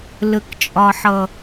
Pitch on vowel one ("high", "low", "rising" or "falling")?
low